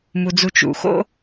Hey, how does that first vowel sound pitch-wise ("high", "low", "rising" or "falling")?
low